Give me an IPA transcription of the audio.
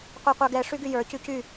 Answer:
qʷ ə˞ qʷ ə˞ ɡ ɛ ʂ y ɡ y j ə˞ c y c y

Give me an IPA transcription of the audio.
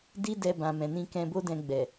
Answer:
d i˦ d ɛ˧ b ã˨ m ɛ̃˨ n ĩ˧ k ɛ̃˧ b o˦ d ɛ̃˧ ɡ͡b ɛ˨

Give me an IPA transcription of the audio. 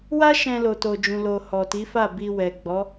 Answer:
w a˦ ʃ ɛ̃˧ l o˨ t o˨ d͡ʒ ũ˨ l o˨ h ɔ˨ t i˨˦ f a˦˨ b i˧ w ɛ˨ ɡ͡b ɔ˨˦

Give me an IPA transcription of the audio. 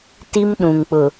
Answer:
t i˦ m ɗ ũ˨ ŋ k͡p ʊ˨

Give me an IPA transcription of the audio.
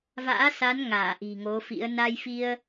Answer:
v a̰ː˧˥ s a˨˦ n ŋ aː˧˩ ʔ i̤˨˩ ŋ o˨˦ f ḭ˧˥ ə̯ n a˧ j f i˧ ə̯

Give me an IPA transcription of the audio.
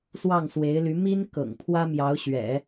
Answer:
s w ɑ˥˩ ŋ s w e˧˥ ɪ̯ l y˧˥ m i˥ n k ɤ̰˨˩ ŋ pʰ w ä˥ m j ɑ˧˥ ʊ̯ ɕ ɥ ɛ̰˨˩˦

